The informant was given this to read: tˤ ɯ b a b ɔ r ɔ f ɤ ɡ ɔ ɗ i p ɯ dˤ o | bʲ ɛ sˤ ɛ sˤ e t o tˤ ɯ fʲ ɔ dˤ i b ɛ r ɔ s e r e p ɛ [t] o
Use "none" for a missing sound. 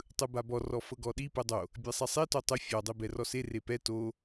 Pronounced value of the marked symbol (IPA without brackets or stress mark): t